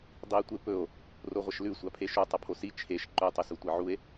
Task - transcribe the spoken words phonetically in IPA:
dˤ i e̯ tʷ e p ɵ o̯ | r o ʁʷ ɐ ʃ l ʉ sʷ a pʰ e ʃ u tˤ ɐ pʰ o s i t͡ʃʰ e ʃ ǃ ɵ tˤ ɵ s u tʷ e ʕ u e̯

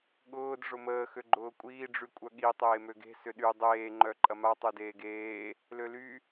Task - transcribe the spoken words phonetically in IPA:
ɠ ʊː d ʐ ʊ m əː x ø ɡ͡ǃ ʊː kʷʼ iː ɖ͡ʐ y kʷʼ œ ɠ i tˤ eː m ø ɡ e̤ s ʏ ɗ y dˤ eː ŋ͡ǃ œ ǃʼ ɐ m a tˤ y d eː ɡ eː | l ø l y

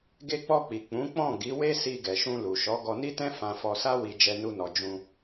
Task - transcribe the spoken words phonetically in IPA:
ɡ e˧ k͡p ɔ˧ k͡p i˨ k͡p ũ˨˦ k͡p ɔ̃˦˨ ɡ i˨˦ w e˦ s i˧ ɡ ɛ˨ ʃ ũ˧ l u˨ ʃ ɔ˨˦ ɡ ɔ˧ n i˦ t ɛ̃˦ f ã˧ f ɔ˧ s a˦ w i˧ d͡ʒ ɛ˧ n u˧ n ɔ˨ d͡ʒ ũ˧

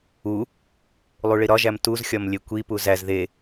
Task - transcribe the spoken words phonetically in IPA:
u | lˠ u ɭ i ɾ ɒ ʒ æ m t u z xʲ ɒ m lʲ e kʷ i p u z æ z ð e

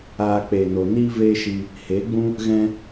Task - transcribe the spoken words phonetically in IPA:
aː˧ k͡p eː˨ n o˨ n iː˦ v eː˦ ʃ i˧ | h eː˨˦ ɡ͡b ũ˦ | ɣ ɛ̃˧

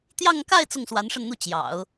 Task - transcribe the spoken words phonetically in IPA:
t̪ j ɑ˥˧ ŋ k a˥˧ ɪ̯ t͡s ʊ˥˩ ŋ s w a˧˥ n ʂ ə˥˧ n n̪ u˥˩ t͡ɕ j ɑ̰˨˩˦ ʊ̯

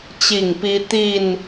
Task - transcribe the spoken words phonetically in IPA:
t͡ɕ i˥˨ ŋ p i˦ t̪ i˥˨ n

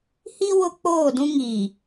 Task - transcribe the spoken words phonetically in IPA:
h i˦ w ʊ˦ k͡p oː˦˨ d ũ˦ ŋ iː˨

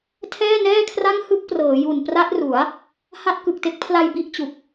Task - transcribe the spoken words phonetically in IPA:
tʰ ɛː˥˩ n ɛː˥˩ kʰ r a˥˩ ŋ h ɯ˥˩ k̚ p r ɤː˩˦ j u˨˩ n p r a˦˥ t̚ r u˩˦ a̯ | h a˦˥ t̚ k ɯ˨˩ k̚ t e˥˩ k̚ pʰ l a˧ j b i˥˩ ʔ t͡ɕ u˨˩ k̚

